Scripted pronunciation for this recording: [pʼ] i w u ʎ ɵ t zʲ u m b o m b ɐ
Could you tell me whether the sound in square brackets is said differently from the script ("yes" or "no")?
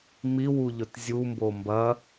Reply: yes